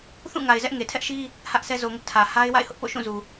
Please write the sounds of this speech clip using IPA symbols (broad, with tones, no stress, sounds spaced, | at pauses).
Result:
θ ũ˦˨ ŋ a˨ ɪ̯ z ɛ˦ ʔ ŋ e˨ tʰ ɛ˦ ʔ ʃ i˦ | h ä˦ ʔ s ɛ˦ z o˨ ŋ ʊ˦ ʔ tʰ ä˨ h a˦ ɪ̯ w a̰˦˨ ɪ̯ h ʊ˦ ʔ p o̰˦˨ ʃ ũ˦˨ z u˨